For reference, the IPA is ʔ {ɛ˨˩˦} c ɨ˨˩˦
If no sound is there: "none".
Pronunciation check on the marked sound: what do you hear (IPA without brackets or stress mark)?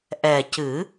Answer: ɛ˨˩